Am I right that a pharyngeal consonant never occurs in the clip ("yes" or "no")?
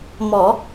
yes